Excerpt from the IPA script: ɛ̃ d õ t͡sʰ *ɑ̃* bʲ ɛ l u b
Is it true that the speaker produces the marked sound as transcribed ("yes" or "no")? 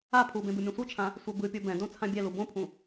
no